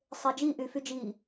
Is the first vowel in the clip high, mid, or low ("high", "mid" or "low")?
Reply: mid